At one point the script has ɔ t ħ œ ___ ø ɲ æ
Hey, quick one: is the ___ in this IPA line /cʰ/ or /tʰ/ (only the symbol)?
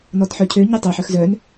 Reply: cʰ